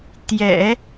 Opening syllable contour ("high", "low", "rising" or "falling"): low